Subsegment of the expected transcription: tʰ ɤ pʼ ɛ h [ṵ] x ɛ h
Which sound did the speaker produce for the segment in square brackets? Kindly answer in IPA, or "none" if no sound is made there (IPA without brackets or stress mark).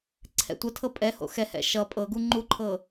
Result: o̰